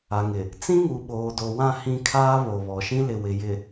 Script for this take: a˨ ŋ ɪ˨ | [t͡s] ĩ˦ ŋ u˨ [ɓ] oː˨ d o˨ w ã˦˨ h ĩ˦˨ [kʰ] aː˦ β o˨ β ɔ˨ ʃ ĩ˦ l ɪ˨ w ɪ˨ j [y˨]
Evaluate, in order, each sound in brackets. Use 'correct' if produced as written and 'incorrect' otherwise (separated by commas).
correct, correct, correct, incorrect